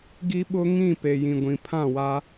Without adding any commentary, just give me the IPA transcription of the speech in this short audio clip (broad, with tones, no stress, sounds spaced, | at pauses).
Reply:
ɡ i˦ ɓ ʊ˦ ŋ ĩ˦˨ p e˨ j ĩ˨ ɡʷ ĩ˨ pʰ ã˦˨ w a˦